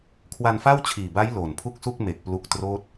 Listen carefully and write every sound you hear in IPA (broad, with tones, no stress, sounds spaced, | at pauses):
kʰ w a˧ n f a˥˩ w t͡ɕʰ iː˨˩ b a˦˥ j l oː˨˩ n pʰ u˥˩ k̚ s u˥˩ k̚ m e˨˩ k̚ p l u˦˥ k̚ t r oː˥˩ t̚